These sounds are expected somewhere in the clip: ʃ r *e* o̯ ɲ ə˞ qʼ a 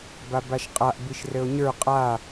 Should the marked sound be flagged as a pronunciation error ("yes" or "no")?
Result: yes